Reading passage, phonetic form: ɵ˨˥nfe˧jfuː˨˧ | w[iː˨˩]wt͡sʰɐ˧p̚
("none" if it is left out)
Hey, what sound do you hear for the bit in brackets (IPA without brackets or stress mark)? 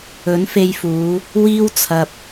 iː˥